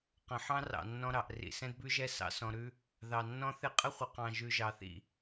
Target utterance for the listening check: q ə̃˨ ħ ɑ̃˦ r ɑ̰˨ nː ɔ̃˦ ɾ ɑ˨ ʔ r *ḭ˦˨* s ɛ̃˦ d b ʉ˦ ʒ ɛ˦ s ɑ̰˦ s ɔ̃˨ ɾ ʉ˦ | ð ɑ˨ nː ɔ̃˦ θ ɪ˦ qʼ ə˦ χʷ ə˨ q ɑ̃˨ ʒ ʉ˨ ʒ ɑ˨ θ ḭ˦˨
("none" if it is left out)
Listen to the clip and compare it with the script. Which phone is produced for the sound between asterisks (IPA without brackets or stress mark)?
ḭ˨